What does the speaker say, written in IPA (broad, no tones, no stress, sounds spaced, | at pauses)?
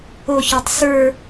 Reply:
o ç ɔ tˤ s ə˞